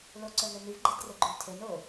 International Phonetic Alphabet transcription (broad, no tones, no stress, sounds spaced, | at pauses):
l o ǀ œ ŋ ø n y v ɡ͡ǃ e d r e ɡ͡ǃ y l tʰ e n o